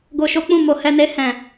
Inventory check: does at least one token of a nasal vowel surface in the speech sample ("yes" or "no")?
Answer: yes